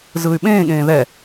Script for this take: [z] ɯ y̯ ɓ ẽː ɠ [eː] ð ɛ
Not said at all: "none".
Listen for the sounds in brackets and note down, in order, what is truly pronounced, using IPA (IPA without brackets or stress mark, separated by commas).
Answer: z, ẽː